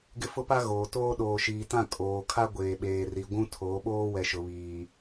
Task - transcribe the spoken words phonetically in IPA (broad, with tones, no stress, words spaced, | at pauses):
ɡɪ˦fʊ˦pa˦ ɣoː˨toː˦ ɗoː˨ʃiː˨tã˦˨ kʼoː˨kʰa˦ ɡʷeː˨ɓeː˨ri˨ ɡʷũ˦tʰoː˨˦ɓoː˦ wɛ˨ʃʊ˨βiː˨